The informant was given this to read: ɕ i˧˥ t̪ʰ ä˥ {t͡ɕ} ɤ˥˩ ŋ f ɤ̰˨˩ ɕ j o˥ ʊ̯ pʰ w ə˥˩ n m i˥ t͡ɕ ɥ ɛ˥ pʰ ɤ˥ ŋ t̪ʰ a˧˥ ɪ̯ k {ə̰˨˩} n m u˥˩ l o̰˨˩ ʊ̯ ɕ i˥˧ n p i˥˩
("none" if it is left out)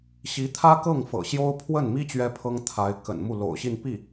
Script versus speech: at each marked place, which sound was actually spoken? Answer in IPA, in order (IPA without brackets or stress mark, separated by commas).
k, ə̰˨˩